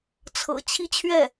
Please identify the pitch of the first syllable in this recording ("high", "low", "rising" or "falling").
low